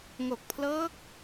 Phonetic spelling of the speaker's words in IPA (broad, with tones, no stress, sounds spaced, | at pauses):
ŋ o˨˩ k̚ pʰ l ɤː˦˥ k̚